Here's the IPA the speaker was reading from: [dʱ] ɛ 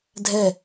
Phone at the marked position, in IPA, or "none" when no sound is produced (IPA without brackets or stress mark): dʱ